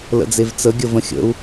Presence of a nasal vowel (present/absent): present